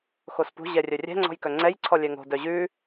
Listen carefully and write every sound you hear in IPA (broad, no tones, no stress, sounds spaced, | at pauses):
x o s p ṳ ʑ ɛ rʲ œ rʲ ɛ̤ ŋ͡ǀ ɔ̤ j k œ ŋ͡ǀ ɛ j ǀʰ ɔ lʲ ɛ ŋ o̤ d œ ʑ ʉ